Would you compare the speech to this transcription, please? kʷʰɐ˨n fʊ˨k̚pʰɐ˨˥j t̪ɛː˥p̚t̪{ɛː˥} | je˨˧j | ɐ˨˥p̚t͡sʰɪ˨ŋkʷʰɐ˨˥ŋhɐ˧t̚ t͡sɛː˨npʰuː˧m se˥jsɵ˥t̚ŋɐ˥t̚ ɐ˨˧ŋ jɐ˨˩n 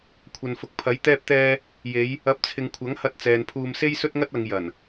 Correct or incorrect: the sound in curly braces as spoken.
correct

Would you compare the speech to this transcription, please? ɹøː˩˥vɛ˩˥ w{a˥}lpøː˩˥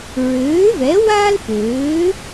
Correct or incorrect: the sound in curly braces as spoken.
incorrect: aː˥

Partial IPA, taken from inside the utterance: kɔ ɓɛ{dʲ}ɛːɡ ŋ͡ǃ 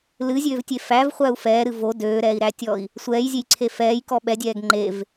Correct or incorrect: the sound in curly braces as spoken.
correct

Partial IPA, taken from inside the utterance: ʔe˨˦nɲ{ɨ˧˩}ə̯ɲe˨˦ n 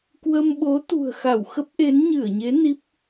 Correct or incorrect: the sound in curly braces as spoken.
correct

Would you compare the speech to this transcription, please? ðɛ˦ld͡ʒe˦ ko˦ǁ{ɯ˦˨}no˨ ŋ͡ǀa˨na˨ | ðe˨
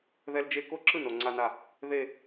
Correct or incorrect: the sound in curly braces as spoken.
correct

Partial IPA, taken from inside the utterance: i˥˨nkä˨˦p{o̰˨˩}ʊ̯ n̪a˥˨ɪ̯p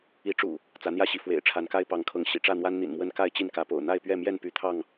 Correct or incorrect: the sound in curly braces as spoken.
correct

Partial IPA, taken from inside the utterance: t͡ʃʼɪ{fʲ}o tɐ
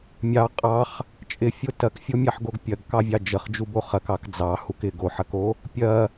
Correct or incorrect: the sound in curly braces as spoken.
correct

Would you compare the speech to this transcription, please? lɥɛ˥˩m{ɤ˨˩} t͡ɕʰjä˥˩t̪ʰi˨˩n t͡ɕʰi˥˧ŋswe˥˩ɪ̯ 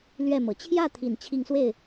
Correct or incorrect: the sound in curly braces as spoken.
correct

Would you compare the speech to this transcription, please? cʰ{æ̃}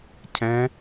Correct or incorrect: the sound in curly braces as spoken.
incorrect: ɛ̃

